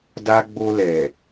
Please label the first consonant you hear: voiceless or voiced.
voiced